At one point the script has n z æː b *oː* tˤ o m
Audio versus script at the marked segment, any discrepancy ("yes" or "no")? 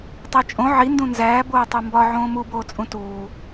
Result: no